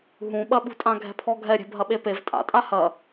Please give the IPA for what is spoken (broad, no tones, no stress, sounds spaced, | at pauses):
ɦ ũ ɓ ɐ ɓ ṳ tʼ ã ɡʱ ɛ̤ pʰ ɔ ɡʱ ɛ ɾʲ e̤ bʱ ɐ ɓ e p e v tʼ a̰ tʼ a h ɐ